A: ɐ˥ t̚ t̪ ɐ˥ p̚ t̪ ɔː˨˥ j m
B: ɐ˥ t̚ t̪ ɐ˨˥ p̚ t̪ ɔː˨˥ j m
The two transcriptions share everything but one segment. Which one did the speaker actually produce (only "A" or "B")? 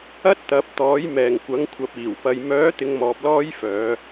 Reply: B